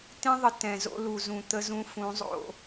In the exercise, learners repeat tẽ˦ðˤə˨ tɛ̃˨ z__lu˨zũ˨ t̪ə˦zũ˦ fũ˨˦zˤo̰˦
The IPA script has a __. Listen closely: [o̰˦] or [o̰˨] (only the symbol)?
o̰˦